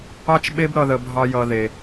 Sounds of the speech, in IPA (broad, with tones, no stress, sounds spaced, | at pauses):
ɑ˦ t͡ʃ ɓ e˦ b ɾ ʌ˧ ð ə˧ bʱ ɑ˧ j ʌ˧ ð e˧